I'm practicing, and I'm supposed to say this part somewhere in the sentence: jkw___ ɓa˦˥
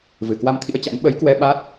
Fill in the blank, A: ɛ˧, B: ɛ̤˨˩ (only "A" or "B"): A